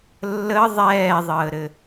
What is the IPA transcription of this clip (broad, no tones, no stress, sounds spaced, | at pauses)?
lː ə ðˤ ɛː ðˤ əː ɾ ɘ